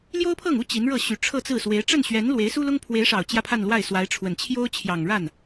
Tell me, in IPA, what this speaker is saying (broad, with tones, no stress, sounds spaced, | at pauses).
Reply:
l j o˥ ʊ̯ pʰ ɤ˥˩ ŋ u˥ t͡ɕ i˧˥ n ɻ ɤ˥˩ ɕ y˨˩ ʈ͡ʂʰ ɤ˥˧ t͡s ɹ̩˥˩ s w e˧˥ ɪ̯ ʈ͡ʂ ə˥˩ n ɕ ɥ ɛ˧˥ n l w e˧˥ ɪ̯ s u˥ l ʊ˥ ŋ pʰ w e˧˥ ɪ̯ ʂ ɑ˨˩ ʊ̯ t͡ɕ j ä˥˧ pʰ a˥˧ n l w a˥˩ ɪ̯ s w a˧˥ ɪ̯ ʈ͡ʂʰ w ə˨˩ n t͡ɕʰ j o˥ ʊ̯ t͡ɕʰ j ɑ˨˩ ŋ ɻ a˥˩ n